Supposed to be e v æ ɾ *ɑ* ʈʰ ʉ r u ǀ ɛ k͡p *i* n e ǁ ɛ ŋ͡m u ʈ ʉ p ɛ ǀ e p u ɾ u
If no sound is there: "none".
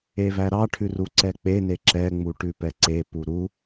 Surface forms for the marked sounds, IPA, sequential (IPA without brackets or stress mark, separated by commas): ɑ, e